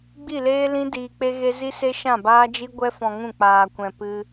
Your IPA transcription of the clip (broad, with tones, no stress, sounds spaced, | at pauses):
ɡ͡b i˦˨ l eː˦ l ĩ˦ d iː˧ k͡p e˦ ɣ e˦ z i˦ s e˦ ʃ ã˦˨ b aː˦ d͡ʒ i˦ ɡʷ ɛ˦ f ɔ̃˧ ŋ ũ˦˨ k͡p aː˧ kʷ ɛ̃˧ p ɨ˦